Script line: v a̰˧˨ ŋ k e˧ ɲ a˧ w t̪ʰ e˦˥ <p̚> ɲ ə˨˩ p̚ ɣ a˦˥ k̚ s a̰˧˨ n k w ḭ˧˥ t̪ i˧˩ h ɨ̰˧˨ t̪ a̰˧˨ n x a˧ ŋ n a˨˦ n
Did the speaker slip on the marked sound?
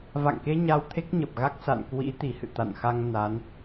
yes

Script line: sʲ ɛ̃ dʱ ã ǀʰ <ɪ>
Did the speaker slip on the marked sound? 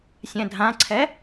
yes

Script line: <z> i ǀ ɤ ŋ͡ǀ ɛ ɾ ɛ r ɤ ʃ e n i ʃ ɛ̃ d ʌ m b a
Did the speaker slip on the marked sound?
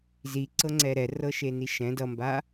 no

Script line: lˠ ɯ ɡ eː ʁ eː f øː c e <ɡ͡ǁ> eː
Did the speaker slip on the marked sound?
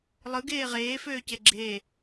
no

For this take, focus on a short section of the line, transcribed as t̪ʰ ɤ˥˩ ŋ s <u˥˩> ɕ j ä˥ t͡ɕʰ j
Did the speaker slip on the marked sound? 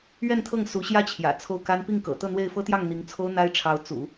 yes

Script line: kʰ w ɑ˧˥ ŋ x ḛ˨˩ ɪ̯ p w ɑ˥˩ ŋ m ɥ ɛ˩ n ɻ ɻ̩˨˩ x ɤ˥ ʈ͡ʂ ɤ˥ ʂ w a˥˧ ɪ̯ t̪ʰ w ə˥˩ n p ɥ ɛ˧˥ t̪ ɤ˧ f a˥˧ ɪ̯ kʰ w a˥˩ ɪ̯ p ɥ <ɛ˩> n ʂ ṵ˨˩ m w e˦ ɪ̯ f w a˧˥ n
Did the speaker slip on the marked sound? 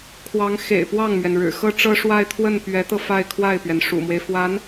no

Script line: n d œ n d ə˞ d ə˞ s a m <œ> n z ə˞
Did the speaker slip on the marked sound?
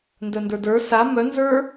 no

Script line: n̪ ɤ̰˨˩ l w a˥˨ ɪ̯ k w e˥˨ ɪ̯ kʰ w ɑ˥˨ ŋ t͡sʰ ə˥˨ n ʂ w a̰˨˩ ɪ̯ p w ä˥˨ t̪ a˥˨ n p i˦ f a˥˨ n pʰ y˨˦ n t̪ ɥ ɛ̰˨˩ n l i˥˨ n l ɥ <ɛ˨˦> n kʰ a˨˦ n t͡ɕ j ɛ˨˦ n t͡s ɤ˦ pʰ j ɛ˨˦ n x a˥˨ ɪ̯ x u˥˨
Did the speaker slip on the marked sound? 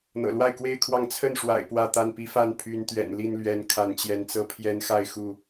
no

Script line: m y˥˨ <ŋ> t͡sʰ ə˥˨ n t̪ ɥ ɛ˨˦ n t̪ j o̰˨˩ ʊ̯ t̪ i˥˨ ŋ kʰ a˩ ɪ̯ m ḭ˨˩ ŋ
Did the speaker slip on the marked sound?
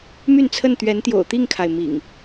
yes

